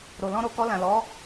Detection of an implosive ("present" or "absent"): absent